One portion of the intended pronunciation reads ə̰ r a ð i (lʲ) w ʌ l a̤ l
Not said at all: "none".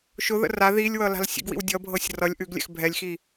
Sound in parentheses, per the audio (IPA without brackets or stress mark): lʲ